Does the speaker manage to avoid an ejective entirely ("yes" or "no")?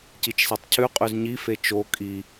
no